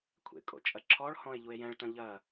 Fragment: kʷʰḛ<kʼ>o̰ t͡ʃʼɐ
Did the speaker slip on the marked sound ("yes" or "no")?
no